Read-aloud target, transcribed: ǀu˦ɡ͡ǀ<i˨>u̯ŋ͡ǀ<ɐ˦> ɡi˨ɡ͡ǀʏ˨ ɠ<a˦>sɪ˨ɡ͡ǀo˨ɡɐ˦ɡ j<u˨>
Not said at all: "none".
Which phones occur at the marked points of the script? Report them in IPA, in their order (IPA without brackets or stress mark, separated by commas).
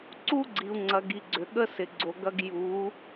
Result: i˨, ɐ˨, ə˦, u˨˦